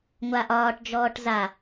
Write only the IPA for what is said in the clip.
ŋʷ a ʔ ɒː ʈ d͡ʒ ɔː ʈ z a

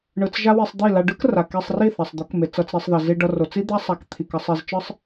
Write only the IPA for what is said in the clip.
ɳ ɯ˧ t͡s ʒ a˦ w i˧ sˤ d̪ i˦˨ l a˧ ɖ ɯ˦ k r a˨ k e˧ sˤ r i˦˨ θ a˨ sˤ d̪ o˨˦ k m e˨ t͡s ʌ˧ t͡s ɾ e˧ sˤ ð ʌ˨ z i˧ ɖ ʌ˧ r o˨ t͡s i˦ d̪ a˦ sˤ a˨˦ k t̪ʰ i˨ k ʌ˧ sˤ e˧ z t͡ʃ ɯ˦ sˤ

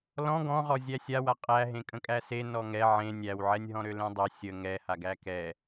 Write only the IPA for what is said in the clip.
l ɔ̃ ɡ ɔ̃ ʁ ɔ zʲ æ sʲ a w a qʼ æ ɦ ẽ kʼ ə̃ kʼ æ s e n ɔ ŋ ɛ ʕ ẽ nʲ æ w ʕ ɛ nʲ ɦ ɔ̃ ɾ ø l ẽ dˤ e sʲ ə ŋ ɛ h a ɡ æ k ɛ

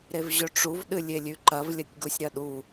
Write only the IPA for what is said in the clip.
ɾ e v ʑ ɵ ʈ͡ʂ u v ɗ ɨ lʲ e lʲ ʉ ǃ ɐ v lʲ ɐ tʲ ɡ u sʲ ɾ ɐ ɗ u

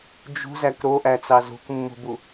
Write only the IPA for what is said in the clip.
d͡ʒ ṳ z æ k ɾ o ʔ æ t͡s ɑ z ṳ k mː ṳ b u

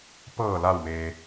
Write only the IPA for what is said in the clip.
p ɤː˧˩ l a˧˩ w m eː˩

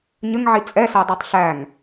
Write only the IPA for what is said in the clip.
ɲ ə ŋ ʕ i t͡sʼ ɛ s æ dˤ ə˞ tˤ ɬ æ ŋ

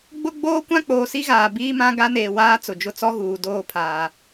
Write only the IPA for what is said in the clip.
ɡ͡b ʊ˦ ɡ͡b oː˦ kʷ ã˦ k͡p oː˨ s i˦ ɣ aː˨ b iː˦ m ã˦ ɡ a˦ n eː˨ w aː˦ t͡s ʊ˨ d͡ʒ ʊ˦ t͡s ɔ˦ ɣ uː˨ d oː˦˨ pʰ aː˨

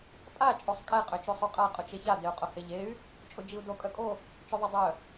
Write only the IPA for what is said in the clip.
pʼ a t͡ʃʼ o sˤ kʼ ɛ qʼ ø t͡ʃ ø sˤ o qʼ a qʼ ʊ t͡ʃ e ç a d e u̯ qʼ ʊ h e ʎ e y̯ | t͡ʃʼ ʊ d͡ʒ i u̯ d o kʼ œ kʼ o | t͡ʃ œ ðˤ e dˤ œ

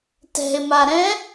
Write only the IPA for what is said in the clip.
t ɛ̤ ɪ̯ m a ɾ ɛ̃

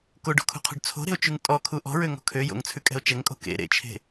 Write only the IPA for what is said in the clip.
k o ɖ o̤ kʰ ṳ qʰ o̤ ɖ t͡sʰ o̤ ɾ e̤ o̯ t͡ʃ ʉ ŋ tʼ ɔ kʰ u ʔ ɔ̤ ɹ ø ŋ ɔ̤ kʰ ø j o̰ ŋ t͡sʰ ʉ kʼ ɛ̤ o̯ t͡ʃ ɛ ŋ kʼ o̤ k ḛ ɾ ḛ t͡ʃʰ e̤

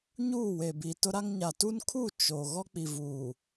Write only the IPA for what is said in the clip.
ɲ uː˦˨ w e˨ b i˨ t ʊ˦ ɾ a˦ ŋ ɲ a˨ t u˦ n kʰ u˦˨ t͡ʃ o˨ ɣ ɔ˦ k͡p i˨ v uː˨

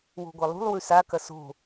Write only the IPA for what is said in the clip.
w o̤ ɡʷ ɐ lˠ ṳ lˠ w ʉ s a k ɐ s o̤

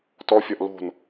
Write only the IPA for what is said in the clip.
t ɔ fʲ ɒ ʔ l o̤ n

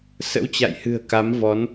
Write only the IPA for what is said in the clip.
s ə̰˧˥ w t͡ɕ a̰˧˨ j h ɨ̤˨˩ ə̯ k a˨˦ m v ɔ˨˦ n

